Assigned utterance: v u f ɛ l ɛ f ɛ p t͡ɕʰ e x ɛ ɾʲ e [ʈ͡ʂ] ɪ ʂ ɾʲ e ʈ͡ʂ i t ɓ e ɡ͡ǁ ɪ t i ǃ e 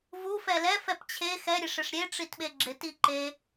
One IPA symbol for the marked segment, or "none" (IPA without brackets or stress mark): ʂ